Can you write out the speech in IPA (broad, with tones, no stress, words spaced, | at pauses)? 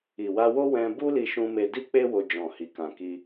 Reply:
i˨wa˧wo˦ wɛ̃˧bu˦ li˧ʃũ˧me˧di˦ k͡pe˦wo˧ d͡ʒɔ̃˨hi˨ kã˨ki˧